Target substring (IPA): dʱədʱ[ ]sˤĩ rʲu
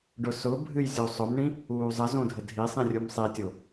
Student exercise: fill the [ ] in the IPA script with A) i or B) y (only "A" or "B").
A